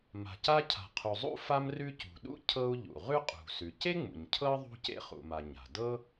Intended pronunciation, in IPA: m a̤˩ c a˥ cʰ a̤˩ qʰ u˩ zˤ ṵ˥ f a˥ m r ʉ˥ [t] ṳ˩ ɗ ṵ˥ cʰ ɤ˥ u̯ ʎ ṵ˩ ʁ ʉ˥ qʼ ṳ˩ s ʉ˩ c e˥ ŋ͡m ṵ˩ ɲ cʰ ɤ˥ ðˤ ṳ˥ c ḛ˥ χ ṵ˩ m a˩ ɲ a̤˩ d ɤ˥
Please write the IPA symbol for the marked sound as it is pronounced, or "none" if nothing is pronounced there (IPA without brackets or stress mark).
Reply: c